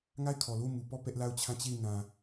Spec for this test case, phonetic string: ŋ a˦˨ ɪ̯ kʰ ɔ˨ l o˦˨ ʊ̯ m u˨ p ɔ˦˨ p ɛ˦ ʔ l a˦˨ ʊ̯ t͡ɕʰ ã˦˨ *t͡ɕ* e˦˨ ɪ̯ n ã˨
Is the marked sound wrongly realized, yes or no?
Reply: no